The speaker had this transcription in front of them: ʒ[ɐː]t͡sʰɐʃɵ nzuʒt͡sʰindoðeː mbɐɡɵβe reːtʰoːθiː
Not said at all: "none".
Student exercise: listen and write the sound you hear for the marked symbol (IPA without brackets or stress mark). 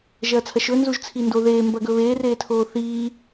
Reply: ɐː